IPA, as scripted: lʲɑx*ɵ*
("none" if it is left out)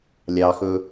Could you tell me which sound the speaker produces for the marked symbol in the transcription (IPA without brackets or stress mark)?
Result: ɵ